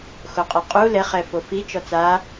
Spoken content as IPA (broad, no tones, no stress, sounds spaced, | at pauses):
x o qʼ ɛ qʼ u l ɛ χ ɛ f o f i t͡ʃ ɔ t͡s a